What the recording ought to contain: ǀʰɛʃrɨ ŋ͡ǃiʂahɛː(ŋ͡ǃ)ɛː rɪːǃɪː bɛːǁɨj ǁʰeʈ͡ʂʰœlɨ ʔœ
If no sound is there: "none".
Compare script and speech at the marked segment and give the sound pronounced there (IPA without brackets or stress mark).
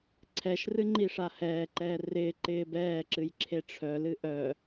ǃ